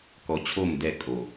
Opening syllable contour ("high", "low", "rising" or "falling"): low